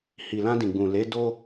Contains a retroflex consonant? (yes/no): no